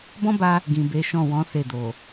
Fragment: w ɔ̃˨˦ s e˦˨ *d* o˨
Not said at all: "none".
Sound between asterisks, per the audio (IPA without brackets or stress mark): d